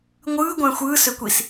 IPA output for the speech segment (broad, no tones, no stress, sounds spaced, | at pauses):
ŋʷ ɯː ɡʷ æ̃ xʷ ɯː s ø kʷ i s